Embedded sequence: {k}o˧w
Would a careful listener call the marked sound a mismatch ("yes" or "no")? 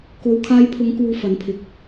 no